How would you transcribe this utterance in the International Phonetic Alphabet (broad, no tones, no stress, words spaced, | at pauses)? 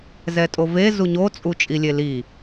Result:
zɛtʼove zuɲo t͡sʼut͡ʃʼilʲeli